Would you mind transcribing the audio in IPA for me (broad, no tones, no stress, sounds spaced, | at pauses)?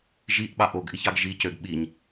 ʒ i ʔ ɓ ɑ ʔ o ɡ ʔ i ç ɑ ɡ ʒ i c ø ɡ ɓ i ɲ